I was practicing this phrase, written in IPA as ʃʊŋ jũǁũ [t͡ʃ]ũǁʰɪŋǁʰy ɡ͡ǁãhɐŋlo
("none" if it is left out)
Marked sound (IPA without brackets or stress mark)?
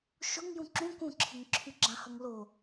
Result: k